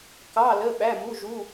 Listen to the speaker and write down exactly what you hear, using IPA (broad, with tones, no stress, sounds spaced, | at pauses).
k ɑ˧˥˧ l ə˧˥˧ ɓ æ˧˥˧ m u˧˥˧ ʒ u˧˥˧